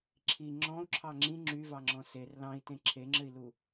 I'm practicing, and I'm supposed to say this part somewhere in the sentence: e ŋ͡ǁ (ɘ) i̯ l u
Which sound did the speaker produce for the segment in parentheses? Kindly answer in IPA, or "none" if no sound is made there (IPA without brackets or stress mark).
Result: ɘ